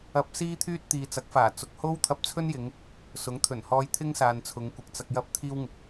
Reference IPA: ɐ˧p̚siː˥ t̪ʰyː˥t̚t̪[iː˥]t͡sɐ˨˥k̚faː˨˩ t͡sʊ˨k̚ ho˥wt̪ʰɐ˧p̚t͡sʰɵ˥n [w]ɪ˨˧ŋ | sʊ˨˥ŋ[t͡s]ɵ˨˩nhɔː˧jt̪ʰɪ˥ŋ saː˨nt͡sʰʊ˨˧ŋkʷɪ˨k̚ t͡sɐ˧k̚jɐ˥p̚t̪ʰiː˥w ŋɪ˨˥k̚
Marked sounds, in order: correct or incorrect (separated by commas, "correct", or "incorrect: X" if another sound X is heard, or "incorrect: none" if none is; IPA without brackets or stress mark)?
incorrect: iː˨, incorrect: j, incorrect: t̪ʰ